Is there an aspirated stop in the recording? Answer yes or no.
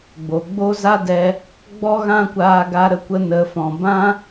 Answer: no